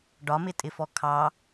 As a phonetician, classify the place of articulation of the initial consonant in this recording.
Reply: retroflex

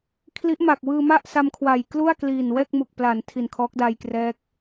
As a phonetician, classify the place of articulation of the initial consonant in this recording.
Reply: velar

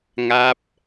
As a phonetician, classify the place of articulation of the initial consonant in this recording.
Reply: velar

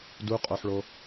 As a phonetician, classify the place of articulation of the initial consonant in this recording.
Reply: alveolar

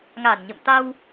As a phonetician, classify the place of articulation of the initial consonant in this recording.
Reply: velar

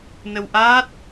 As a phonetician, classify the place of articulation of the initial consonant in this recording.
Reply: alveolar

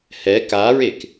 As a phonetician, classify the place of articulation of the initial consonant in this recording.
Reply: glottal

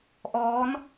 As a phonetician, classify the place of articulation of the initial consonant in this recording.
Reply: glottal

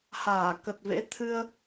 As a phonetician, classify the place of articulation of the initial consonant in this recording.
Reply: glottal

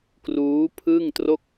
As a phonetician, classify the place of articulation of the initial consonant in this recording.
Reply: velar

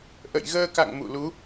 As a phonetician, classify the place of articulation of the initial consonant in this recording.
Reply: glottal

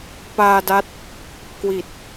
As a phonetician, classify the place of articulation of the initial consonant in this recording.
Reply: labial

